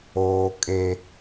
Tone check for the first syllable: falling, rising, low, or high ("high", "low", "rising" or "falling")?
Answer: high